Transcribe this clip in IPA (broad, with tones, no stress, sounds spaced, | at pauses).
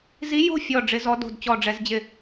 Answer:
z i˧˥ j o̤˥˨ fʲ ɔ˥˨ ɖ͡ʐ ɪ˧˥ z ɔ˧˥ d o̤˥˨ d t͡ɕ ɔ˥˨ ɖ͡ʐ ɛ˧˥ z d͡ʑ ɪ˥˨